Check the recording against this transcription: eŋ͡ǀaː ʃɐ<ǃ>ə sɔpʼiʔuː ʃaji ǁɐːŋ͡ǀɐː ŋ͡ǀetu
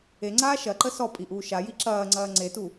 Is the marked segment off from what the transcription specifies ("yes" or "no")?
no